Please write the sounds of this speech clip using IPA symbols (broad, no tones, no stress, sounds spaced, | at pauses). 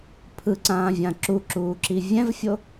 pʰ ɯ ǀ ãː vʲ ã ǁ u ǁ uː ǁ i vʲ ɛ̃ v fʲ o